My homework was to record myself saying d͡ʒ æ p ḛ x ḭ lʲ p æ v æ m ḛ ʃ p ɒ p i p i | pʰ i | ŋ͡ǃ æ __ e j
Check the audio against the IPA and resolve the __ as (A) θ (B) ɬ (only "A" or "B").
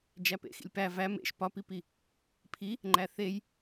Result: A